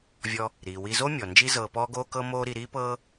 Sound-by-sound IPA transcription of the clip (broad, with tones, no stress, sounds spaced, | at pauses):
vʲ ɔ˧ | ɾ iː˩ w i˧ z o˥ mʲ ɔ˩ n d͡ʒ i˥ z ɤː˧ p ɔː˥ ɡ oː˥ k ɤ˥ m oː˥ ɾ i˧ ɾ iː˥ p ɤː˥